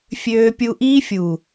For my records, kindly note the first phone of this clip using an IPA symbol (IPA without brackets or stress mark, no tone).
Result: fʲ